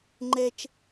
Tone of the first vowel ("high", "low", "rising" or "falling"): low